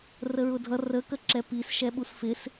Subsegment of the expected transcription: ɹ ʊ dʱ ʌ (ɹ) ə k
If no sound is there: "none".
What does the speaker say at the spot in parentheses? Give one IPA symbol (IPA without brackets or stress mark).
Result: r